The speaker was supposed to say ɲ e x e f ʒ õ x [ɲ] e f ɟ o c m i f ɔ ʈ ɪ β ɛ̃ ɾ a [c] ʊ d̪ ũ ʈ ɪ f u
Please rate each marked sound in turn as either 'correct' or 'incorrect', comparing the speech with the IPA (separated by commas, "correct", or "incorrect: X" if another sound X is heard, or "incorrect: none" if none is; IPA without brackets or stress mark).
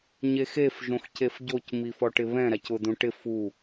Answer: incorrect: c, correct